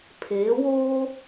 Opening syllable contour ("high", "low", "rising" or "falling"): rising